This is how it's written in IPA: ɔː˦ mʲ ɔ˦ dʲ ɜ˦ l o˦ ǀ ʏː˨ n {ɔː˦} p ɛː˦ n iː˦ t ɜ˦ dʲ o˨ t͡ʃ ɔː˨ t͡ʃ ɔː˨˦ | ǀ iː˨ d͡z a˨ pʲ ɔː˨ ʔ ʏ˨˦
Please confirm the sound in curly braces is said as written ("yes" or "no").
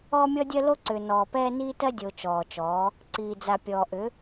no